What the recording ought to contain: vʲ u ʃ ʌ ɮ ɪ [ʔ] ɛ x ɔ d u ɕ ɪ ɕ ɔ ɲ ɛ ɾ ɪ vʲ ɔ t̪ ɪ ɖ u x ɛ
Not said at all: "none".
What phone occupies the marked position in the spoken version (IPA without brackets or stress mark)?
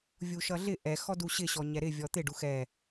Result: ʔ